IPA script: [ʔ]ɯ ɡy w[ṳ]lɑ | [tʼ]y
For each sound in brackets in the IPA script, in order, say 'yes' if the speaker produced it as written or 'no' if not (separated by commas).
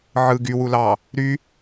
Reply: no, no, no